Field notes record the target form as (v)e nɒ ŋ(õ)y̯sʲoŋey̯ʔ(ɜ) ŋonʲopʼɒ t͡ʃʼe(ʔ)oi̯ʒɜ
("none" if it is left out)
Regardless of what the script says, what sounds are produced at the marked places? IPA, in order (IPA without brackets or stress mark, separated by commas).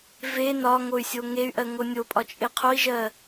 v, o, ɜ, qʰ